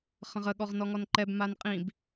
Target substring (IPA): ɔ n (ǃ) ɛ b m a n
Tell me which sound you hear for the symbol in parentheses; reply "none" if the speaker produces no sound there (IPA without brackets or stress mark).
ǃ